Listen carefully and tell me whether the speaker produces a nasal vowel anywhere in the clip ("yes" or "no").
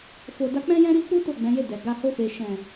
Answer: yes